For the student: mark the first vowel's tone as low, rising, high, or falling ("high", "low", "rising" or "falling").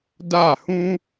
falling